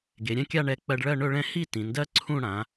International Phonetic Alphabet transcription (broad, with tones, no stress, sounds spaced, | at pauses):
ɡ e˩˧ ɾʲ ɛ̃˥˧ kʲ a˥˧ ɳ ɛ˧ k͡p ɜ˧ ɖ ɭ ɜ˥˧ ɳ ɵ˥˧ ɭ ɛ̃˥˧ h i˥˧ t ĩ˩˧ n d ɜ˥ ǀʰ ũ˥˧ ɽ ã˩˧